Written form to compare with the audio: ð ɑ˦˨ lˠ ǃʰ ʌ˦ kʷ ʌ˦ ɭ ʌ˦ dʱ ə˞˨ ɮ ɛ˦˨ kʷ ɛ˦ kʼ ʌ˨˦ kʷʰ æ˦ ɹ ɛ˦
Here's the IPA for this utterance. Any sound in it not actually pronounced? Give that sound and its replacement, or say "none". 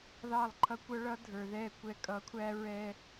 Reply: ɮ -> ð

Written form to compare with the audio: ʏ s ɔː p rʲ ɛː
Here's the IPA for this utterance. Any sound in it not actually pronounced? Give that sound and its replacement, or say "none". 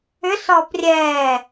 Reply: none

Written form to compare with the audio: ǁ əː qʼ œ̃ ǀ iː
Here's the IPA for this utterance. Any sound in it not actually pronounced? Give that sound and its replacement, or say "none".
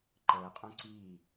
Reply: ǁ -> ǃ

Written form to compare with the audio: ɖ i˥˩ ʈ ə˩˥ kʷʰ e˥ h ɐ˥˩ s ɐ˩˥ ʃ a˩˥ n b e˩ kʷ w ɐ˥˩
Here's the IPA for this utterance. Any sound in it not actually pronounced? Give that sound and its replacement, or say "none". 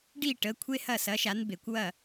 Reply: none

